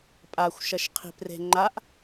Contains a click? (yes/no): yes